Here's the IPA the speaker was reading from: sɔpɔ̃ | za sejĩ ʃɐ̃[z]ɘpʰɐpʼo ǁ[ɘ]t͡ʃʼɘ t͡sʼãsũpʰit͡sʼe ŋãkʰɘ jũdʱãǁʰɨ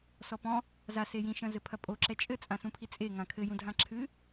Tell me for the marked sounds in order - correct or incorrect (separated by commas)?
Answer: correct, incorrect